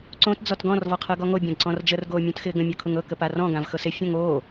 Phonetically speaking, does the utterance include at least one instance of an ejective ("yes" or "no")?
no